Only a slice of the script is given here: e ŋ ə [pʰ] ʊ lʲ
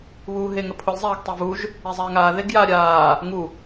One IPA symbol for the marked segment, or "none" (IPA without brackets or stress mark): pʰ